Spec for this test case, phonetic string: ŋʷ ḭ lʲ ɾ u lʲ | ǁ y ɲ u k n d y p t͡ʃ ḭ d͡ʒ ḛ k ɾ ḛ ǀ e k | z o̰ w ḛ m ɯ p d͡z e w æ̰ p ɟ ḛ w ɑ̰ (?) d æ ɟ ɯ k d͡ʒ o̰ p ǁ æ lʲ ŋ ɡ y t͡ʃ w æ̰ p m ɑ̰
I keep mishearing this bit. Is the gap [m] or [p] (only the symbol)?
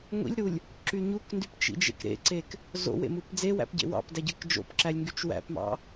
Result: p